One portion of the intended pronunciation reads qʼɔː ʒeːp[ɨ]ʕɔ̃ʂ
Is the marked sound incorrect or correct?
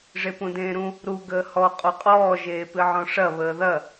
correct